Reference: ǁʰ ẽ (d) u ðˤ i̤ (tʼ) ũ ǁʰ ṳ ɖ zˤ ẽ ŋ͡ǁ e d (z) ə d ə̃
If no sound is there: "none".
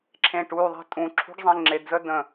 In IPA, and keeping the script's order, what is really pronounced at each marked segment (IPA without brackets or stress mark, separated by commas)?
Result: ʈ, tʼ, z